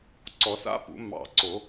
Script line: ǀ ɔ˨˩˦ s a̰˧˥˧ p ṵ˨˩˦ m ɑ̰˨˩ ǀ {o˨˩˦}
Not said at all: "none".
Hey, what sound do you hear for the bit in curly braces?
o˨˩˦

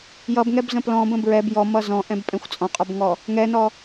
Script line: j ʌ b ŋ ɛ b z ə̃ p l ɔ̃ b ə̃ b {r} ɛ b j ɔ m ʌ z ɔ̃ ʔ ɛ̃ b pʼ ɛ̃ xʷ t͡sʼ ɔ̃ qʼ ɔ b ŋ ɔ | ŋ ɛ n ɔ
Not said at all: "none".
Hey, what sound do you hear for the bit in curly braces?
ɹ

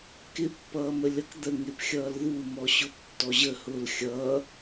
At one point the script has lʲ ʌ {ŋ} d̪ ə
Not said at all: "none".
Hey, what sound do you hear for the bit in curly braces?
k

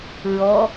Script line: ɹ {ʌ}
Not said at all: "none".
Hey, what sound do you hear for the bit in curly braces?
ɔ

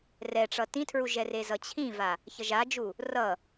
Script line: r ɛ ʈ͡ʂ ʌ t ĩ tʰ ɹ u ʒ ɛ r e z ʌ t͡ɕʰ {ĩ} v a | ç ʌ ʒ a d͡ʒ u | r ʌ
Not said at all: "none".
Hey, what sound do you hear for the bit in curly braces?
ĩ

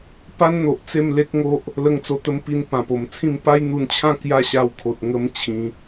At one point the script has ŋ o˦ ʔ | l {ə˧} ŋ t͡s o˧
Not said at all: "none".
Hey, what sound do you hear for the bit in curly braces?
ə˧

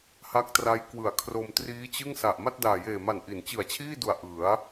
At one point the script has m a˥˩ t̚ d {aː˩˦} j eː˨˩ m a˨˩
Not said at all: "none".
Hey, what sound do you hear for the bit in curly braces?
aː˨˩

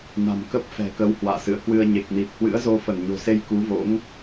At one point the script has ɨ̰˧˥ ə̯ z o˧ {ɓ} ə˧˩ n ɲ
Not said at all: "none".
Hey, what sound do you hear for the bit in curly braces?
f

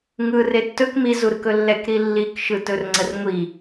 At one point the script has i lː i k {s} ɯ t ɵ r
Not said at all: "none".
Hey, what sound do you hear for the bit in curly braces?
ʃ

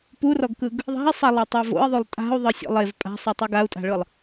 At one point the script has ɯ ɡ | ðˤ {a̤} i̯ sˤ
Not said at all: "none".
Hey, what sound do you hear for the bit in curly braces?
a̤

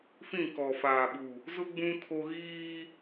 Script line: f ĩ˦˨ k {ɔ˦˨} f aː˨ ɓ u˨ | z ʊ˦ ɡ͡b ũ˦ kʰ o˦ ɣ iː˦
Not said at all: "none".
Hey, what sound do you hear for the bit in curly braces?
ɔ˨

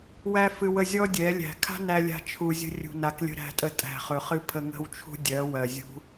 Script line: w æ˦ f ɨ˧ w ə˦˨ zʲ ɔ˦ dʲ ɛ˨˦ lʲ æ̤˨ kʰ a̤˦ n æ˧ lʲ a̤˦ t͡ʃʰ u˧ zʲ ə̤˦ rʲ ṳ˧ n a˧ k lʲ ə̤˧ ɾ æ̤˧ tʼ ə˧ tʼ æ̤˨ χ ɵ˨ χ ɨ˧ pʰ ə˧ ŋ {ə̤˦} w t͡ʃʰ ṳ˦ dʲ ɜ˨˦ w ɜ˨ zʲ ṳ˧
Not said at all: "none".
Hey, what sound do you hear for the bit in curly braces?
ə̤˦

